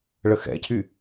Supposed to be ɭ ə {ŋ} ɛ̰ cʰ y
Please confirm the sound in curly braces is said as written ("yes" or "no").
no